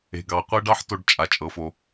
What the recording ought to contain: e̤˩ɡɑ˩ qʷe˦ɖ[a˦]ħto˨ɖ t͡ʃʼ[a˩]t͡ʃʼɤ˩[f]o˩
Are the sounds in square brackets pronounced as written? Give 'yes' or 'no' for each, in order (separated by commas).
no, yes, yes